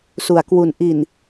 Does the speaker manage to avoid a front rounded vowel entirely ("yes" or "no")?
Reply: yes